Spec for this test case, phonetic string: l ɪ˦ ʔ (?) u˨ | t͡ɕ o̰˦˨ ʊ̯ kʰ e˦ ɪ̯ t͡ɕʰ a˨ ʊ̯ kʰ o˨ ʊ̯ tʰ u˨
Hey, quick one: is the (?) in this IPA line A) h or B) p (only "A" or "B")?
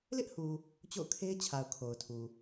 A